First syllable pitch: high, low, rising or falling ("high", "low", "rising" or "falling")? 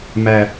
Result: low